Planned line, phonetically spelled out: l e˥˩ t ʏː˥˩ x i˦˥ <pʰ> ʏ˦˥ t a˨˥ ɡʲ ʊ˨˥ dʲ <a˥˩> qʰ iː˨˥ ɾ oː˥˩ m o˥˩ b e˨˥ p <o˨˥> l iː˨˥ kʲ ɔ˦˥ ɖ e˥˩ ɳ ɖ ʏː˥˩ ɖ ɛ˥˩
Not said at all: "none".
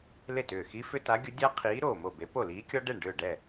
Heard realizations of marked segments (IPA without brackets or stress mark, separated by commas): f, a˦˥, o˥˩